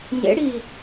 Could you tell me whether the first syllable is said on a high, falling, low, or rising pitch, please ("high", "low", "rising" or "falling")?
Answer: rising